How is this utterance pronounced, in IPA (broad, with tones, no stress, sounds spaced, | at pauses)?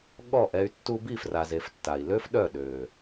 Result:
ɠ ɔ˦˨ ʔ ɛ˧ y̯ tː u˧ b i˦˨ f r a˨ z e˨ f tː a˨ i̯ l ø˦ f ɗ œ˦˨ ɗ ø˨